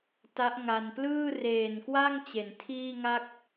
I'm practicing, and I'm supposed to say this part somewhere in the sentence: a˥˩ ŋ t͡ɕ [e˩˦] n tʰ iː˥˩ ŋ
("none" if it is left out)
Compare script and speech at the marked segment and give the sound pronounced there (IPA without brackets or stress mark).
e˩˦